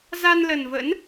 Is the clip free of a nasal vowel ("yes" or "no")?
yes